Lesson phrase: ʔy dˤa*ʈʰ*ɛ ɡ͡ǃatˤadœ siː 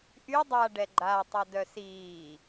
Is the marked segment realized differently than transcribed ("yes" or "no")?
yes